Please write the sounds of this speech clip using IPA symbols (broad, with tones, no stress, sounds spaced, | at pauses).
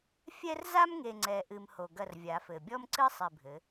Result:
fʲ ɛ˦ r z a˦ m ŋ e˨ ŋ͡ǀ ɛ˨ ʔ ɨ˨ m h o˨ ɡ ɐ˦˨ r vʲ a˨˦ f ɘ˨ bʲ ɔ˦ m ǀ ɨ˦ sˤ i˨ bʱ ɘ˨˦